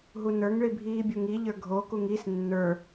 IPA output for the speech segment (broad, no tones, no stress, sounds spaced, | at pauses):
ɦ u n ə˞ ŋ ɭ i bʱ iː bʲ u ŋ i ʎ ə˞ ɡʱ o k u ŋ i s nː ə˞